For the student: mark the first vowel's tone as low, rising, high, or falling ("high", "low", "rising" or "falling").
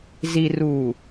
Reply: low